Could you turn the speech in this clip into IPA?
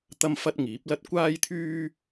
t̪ɐ˥mfɐ˥t̚ŋiː˨˥p̚lɐ˥t̚ kʷaː˥jt̪ʰyː˥

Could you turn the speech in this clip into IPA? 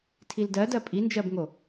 tʰildɜ dɜpʼind͡ʒɜbŋo

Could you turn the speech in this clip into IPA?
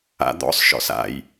a̰d̪ɔ̰sˤʃɔ̰s a̰j

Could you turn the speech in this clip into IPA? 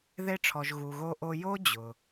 ðe˧ʈ͡ʂʰɔ˩ʒ ɣu˩ɣo˧ʔo˧ jo˥ d͡ʑʊː˩

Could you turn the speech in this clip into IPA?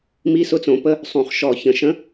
mi˧˥˧sʊ˧˥˧t͡sõ˧˩˧pə˧˥˧ | sˤũ˨˩χʃɔ˨˩çə̃˧˩˧ ʃə̃˨˥

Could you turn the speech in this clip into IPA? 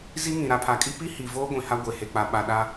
zi˦ŋĩ˨ ɾa˨pʰa˨˦kʼi˦ pi˦hi˨voː˦ ɡʷĩ˨ha˦ ɡʷe˨he˨k͡pa˨ ɓa˨ɗa˦

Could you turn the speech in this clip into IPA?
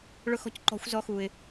ɭʊ˦xɔ̤˦cǃɔ̤˨˥xʷ zɔ˨˥xu˩ɪ̯

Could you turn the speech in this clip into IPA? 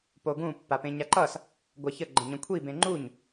poɡũ pːapẽɲaǃʌs | ɡʷaçə ɡ͡ǃə̃ɲə̃kʷʰi bẽŋ͡ǃuɲ

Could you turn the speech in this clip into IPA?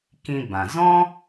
kĩ˧bã˨ zɔ̃˦

